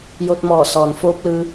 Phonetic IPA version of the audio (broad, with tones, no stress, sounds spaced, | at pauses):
j o˧ t̚ m ɔː˧˩ s ɔː˩ n f oː˧˥ p̚ l ɯː˧